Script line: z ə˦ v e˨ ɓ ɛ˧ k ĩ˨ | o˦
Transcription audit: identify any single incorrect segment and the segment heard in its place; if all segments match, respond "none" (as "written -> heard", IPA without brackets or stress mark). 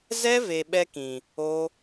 ə˦ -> ɛ˦